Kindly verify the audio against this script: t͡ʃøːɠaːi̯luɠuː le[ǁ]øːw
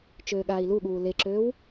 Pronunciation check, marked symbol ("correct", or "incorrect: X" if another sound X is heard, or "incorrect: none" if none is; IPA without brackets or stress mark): correct